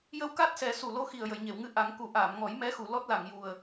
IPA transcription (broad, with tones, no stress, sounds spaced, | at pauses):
j ə˧ w k a˦˥ t̚ s ɛ˨˩˦ s u˨˩ l o˧˥ x i˨˩ ə̯ j ə˨˩˨ j ɲ e˨˩˨ w ŋ ɨ˧ ʔ a˨˩˦ ŋ k u˨˩˦ ʔ aː˨˩˨ m ŋ ɔ˨˩˦ j m ɛ˧˥ x u˨˩˨ l ɔ˦˥ t̚ l a˨˩˨ ŋ j u˨˩ ə̯